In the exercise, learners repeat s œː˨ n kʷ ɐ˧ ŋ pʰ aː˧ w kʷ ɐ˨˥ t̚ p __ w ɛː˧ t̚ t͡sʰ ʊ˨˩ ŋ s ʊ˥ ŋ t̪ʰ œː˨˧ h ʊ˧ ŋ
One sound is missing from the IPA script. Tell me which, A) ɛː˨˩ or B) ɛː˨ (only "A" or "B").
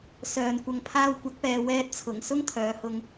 B